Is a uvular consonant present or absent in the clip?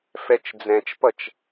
absent